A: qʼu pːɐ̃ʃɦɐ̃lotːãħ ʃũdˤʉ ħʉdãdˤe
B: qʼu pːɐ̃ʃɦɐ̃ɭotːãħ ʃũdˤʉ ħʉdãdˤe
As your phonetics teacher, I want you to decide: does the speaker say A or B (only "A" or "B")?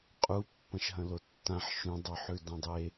A